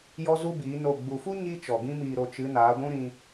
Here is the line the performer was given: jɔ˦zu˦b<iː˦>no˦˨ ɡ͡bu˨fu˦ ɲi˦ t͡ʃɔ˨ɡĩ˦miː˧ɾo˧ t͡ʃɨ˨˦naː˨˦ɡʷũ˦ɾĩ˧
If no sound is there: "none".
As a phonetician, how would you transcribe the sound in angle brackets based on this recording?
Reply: iː˨˦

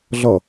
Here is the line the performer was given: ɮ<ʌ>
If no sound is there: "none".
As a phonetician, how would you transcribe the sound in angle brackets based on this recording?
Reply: ʌ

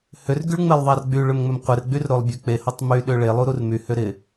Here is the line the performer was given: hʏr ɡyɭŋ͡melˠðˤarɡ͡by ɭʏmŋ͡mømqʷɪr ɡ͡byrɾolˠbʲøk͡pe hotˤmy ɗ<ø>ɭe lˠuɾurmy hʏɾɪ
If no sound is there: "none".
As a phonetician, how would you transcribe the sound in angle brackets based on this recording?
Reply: ø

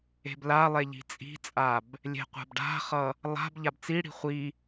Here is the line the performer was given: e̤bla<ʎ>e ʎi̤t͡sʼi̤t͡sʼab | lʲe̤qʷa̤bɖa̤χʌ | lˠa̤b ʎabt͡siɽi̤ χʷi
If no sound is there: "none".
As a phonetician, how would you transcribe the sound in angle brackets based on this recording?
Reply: lˠ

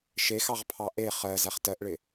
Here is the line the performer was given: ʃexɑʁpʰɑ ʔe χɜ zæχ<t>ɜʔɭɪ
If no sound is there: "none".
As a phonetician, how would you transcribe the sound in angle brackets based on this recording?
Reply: t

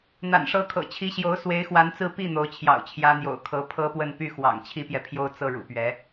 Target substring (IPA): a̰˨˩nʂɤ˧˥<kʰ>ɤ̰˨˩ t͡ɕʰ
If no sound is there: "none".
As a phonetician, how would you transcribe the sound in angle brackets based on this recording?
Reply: kʰ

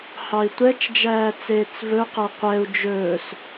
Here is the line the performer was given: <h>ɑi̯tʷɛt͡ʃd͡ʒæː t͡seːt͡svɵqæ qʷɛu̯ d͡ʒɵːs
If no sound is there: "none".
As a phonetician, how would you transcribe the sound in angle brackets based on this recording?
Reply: h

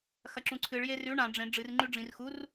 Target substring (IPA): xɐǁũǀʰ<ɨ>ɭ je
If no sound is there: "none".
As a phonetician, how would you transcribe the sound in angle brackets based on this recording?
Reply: ɨ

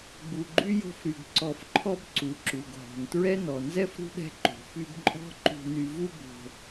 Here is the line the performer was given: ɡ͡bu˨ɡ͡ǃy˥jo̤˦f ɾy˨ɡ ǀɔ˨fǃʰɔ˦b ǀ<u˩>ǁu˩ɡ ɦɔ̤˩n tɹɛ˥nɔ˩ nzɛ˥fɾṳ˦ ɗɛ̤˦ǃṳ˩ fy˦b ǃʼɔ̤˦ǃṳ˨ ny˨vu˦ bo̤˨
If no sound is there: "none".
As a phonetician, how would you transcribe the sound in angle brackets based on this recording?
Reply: u˩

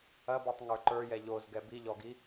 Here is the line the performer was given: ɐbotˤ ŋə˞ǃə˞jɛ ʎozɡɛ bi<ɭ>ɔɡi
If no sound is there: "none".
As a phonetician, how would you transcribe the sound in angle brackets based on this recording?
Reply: ʎ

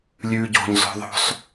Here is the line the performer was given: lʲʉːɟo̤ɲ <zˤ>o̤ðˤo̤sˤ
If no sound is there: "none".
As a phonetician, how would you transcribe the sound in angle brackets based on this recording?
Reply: z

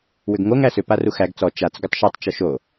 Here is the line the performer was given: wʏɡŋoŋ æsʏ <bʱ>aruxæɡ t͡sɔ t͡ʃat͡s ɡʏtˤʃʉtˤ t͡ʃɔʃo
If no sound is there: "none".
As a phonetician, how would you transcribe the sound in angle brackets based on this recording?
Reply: p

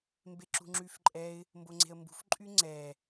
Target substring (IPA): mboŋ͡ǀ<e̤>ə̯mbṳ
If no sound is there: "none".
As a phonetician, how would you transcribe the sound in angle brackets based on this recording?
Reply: e̤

